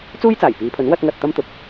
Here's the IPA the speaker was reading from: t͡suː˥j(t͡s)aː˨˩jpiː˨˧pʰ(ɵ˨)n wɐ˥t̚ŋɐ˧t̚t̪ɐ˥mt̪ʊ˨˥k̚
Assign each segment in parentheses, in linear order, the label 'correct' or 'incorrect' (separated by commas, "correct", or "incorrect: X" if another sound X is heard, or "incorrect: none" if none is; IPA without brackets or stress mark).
correct, incorrect: ɵ˨˥